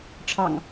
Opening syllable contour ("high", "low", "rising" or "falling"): low